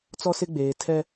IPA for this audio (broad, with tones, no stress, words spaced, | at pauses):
t͡sɔ˦sɪ˦ɡ͡beː˨ tʰɛ˦